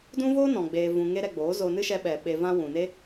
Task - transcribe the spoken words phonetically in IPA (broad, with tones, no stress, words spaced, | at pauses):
dũ˦voː˦nɔ̃˨ ɡ͡beː˧vũ˧ ŋe˦ɾɛ˧ɡ͡boː˨˦ zo˧nɨ˦ʃɛ˧ ɓɛ˨ ɓe˧vã˦ wũ˨ne˦